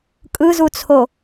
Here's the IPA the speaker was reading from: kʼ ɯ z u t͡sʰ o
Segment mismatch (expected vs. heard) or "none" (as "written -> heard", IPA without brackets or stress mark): none